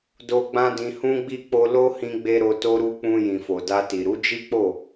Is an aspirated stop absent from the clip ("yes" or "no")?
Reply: yes